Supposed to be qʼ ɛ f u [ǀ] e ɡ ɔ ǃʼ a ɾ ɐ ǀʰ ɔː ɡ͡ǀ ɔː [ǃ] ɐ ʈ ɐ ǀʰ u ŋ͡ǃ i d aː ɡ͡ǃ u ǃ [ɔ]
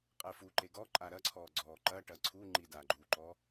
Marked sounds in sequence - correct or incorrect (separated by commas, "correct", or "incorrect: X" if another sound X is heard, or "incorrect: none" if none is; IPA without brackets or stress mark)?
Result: incorrect: ǃ, correct, correct